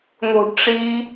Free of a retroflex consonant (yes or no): no